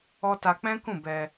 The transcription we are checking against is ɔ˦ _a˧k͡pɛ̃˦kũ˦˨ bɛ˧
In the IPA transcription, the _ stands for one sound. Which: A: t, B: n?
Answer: A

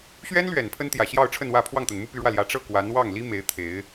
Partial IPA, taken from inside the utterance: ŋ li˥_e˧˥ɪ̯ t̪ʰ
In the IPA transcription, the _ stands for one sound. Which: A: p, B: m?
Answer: B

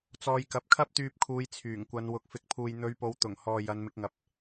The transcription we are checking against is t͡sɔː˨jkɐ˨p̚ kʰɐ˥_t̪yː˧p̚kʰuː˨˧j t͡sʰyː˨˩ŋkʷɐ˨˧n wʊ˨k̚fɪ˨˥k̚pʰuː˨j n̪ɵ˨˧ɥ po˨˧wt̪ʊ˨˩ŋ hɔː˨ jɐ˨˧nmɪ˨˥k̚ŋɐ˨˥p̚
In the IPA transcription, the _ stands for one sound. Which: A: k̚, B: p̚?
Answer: B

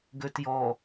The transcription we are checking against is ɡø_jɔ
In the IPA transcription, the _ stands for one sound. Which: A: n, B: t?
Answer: B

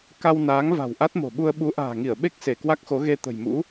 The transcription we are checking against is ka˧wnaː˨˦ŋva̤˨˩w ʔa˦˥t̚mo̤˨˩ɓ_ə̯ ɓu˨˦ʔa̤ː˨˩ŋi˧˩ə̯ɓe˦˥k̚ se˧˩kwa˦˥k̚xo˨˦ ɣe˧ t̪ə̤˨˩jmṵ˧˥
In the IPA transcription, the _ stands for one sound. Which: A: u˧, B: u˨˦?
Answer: A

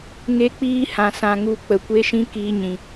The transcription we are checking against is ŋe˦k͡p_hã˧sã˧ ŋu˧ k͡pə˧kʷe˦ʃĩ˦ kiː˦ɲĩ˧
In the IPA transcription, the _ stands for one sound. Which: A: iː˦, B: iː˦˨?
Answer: A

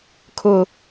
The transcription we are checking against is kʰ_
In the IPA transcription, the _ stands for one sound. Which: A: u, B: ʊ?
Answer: B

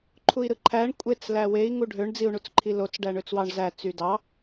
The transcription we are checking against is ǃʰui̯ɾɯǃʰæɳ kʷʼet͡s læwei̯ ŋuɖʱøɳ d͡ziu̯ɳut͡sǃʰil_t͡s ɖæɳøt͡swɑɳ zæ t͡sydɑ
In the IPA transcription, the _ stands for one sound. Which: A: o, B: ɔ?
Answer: A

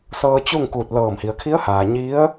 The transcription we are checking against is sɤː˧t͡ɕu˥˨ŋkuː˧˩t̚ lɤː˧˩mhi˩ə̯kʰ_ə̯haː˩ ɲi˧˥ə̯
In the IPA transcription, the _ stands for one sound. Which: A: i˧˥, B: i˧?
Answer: A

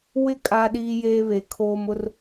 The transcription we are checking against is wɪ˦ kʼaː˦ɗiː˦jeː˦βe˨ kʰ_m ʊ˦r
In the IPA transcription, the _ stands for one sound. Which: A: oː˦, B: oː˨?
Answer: A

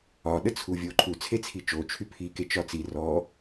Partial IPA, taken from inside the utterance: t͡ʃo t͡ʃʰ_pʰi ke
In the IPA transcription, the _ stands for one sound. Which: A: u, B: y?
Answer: B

